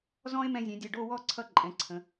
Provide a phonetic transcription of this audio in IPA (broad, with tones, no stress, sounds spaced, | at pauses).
z ɔ̃˥ e̯ m ɛ̃˧ zʲ ɛ̃˩˧ dʲ ʌ˧˩ ɖ o˥˧ w ɔ˥˧ ǀʰ ʌ˥ ǃʼ ɛ̃˩˧ ǀʰ ə̃˩˧